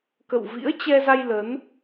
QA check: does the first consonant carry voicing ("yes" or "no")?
no